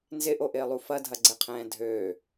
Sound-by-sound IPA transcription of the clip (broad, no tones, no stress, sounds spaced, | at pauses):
n z ɪ ʔ o ʔ ɪː lˠ u f ɐ dʱ ɐ ɡ͡ǀ ɛ qʰ ɛ̃ː dʱ øː